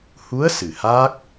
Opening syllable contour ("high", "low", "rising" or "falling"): rising